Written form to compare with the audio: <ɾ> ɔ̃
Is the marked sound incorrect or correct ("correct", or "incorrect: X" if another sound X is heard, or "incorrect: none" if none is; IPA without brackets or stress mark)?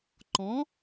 incorrect: ǃ